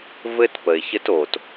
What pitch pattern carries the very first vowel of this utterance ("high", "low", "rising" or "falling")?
high